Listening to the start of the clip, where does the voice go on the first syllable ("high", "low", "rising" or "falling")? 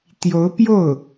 rising